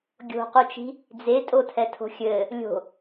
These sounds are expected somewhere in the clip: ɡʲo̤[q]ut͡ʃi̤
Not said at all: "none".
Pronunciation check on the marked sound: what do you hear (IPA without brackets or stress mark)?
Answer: q